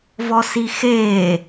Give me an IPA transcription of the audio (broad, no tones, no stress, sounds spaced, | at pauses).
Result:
v ɔ s i x eː